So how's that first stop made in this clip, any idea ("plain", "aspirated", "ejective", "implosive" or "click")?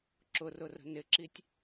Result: click